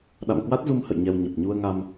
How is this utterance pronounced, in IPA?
ɗ a̰˧˨ m k w a˦˥ t̚ z u˧ m h ə̰˧˨ j ɲ ɛ˧ w ɲ ə˨˩ p̚ ɲ u˧ ə̯ ŋ a˧ m

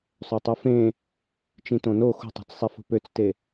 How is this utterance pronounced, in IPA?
sˤ ø tˤ ɯ f ẽ | t͡ʃ ĩ t õ n o x ṳ tˤ o̤ t͡s sˤ i f o̤ p ø t͡s t e

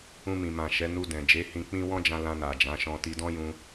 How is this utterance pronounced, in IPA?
ũ˧ m ĩ˨ m ã˨ ʃ ɛ˨˦ n u˧ d ɛ̃˨ d͡ʒ e˨˦ h ĩ˧ k͡p ĩ˦ w ɔ̃˦ d͡ʒ ã˧ l ã˧ n a˨ d͡ʒ ã˨˦ ʃ ɔ̃˧ t i˧ d ɔ̃˦ j ũ˧

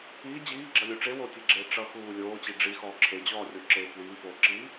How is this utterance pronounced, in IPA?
iː d͡ʑ iː ɡ͡ǁ ʌ lʲ u ʈ͡ʂ e w o tʲ e ɡ͡ǁ eː ʈ͡ʂ ʌ x uː lʲ oː t͡ɕ i ɖ͡ʐ i x ɔː ǁʰ e d͡ʑ ɔː rʲ o ǁ eː p w iː p oː ǁ iː

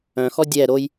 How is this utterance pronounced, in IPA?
œ̃ x ɔ dʲ ɛ ɾ o j

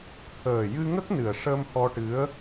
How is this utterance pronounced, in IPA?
t̪ʰ əː˨˩ j ɨ˧ ŋ ə˦˥ k̚ n ɨ˨˩ ə̯ ʂ ə˧ m h ɔ˧ ʈ ɨ˧˥ ə̯

